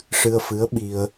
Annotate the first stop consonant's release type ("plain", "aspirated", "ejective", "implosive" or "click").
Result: implosive